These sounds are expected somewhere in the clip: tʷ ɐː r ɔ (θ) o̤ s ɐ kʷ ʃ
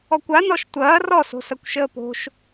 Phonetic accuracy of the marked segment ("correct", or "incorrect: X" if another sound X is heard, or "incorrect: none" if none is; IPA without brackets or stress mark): incorrect: s